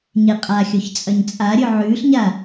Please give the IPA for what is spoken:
ɲ e qʼ a xʲ o ç t͡sʼ ɐ ɲ t͡sʼ a ɾʲ ɵ ʕ ʉː ɬ ɲ a

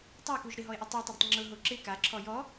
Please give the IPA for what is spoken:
tˤ a k u ʒ ɾ ɪ ɦ ɔ ɪ̯ ʔ i tˤ i tˤ ɪ ɾ ɪ tˤ ŋ͡ǁ ʊ ɦ o ǁ ɪ k a ǁʰ ɔ j ɔ

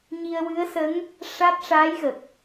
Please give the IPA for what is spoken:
ɲ i˧ ə̯ w ɨ˧˥ ə̯ s ə˧˥ ŋ | ʂ a˦˥ t̚ ʂ aː˧˥ j ɣ ə˨˩ k̚

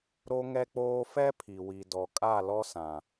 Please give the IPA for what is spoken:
ɾ o˦ ŋ ɛ˦ k͡p oː˦ f ɛ˦ pʰ i˨ w i˨ d ɔ˨ kʼ a˦˨ l ɔ˦ s ã˨

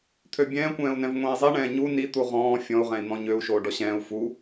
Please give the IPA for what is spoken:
t̪ʰ ø bʲ ɛ̃ː kʷ ɛ̃ː u̯ n ɛ̃ v ŋʷ ẽː i̯ zˤ i ɳ ɛ̃ː ɲ u n i t̪ u ʁ ɔ̃ː fʲ ɔ̃ u̯ ʁ ɛ̃ i̯ n̪ ɔ̃ ɲ ø u̯ ʃ oː ɖ ɔ ɕ ɛ̃ː u̯ f u

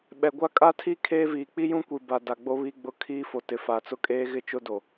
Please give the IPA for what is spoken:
ɓ ɛ˨ ɡʷ a˦ kʼ a˦ tʰ i˦ kʰ eː˦ v iː˨ k͡p i˦ j ũ˦ kʷ i˨ b a˨ d a˨ ɡ͡b o˦ β i˦ ɡ͡b ʊ˦ kʰ iː˦ f o˨ t ɪ˨ f a˨ t͡s ʊ˦ kʼ eː˦ ɣ ɪ˦˨ t͡ʃ ʊ˦ d o˨

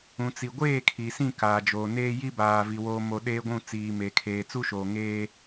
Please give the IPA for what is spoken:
ũ˨ t͡s i˨ ɡʷ eː˦˨ kʰ i˨ s ĩ˦˨ k aː˨ d͡ʒ oː˨ n eː˦ j i˦ b aː˨ v i˨ w oː˨ m o˨ ɗ eː˦ ɡʷ ũ˦˨ t͡s iː˨ m e˨ kʰ eː˨ t͡s u˦ ʃ oː˨ ŋ eː˦

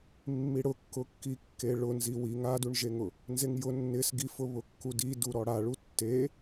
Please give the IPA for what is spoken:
mː i ɽ ʊ kː ʊ kː i kː e ɭ ʊ n z i w i ŋ a d u ɳ ʒ e ŋ ʊ | n z e ŋ j ʊ nː ɪ s ɡ i f ʊ β ʊ kː u d i d u ɾ ɔ ɽ a ɭ u tː e

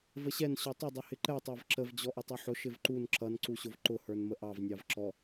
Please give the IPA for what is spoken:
v ə ɕ ɛ n ɕ ɔ tˤ ə dˤ ʊ h ɪ ǃ ɛ tˤ æ v ǁ ə v d͡ʑ ɔ ʔ ʊ tˤ u ħ ʊ ʃ ɪ v ǃ u n ǁ ʌ n ǀ u ɕ ʊ v ǃ ʊ h ə˞ n m ə ʔ ɑ v nʲ ɑ v ǁ ɔ

